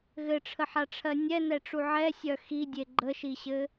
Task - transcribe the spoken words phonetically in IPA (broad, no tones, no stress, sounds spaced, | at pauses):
ɣ ɘ ʈ͡ʂʰ ə ħ a ʈ͡ʂʰ ɜ nʲ ɛ n ɛ ʈ͡ʂ u ʕ ɛ sʲ œ x i dʲ e ɡ͡ǃ ə ʃ i ɕ ɘ